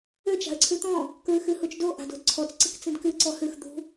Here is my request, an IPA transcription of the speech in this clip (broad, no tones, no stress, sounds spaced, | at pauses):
ø t͡ʃ a̤ ə̯ ǀʰ ʉ t̪ ɔ̃ | k ɹ ɨ x ɨ h u t͡ʃ d o ʔ a̤ d o̤ d ǀʰ ɔ t͡s ǀ ɨ k t͡s ĩ d k ɨ ǀ ɔ h ʉ x d̪ ṳ